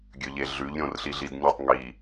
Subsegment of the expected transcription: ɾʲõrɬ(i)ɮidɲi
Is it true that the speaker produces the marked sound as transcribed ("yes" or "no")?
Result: yes